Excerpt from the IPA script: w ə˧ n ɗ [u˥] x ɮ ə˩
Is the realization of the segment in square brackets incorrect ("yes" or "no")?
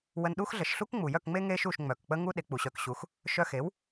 no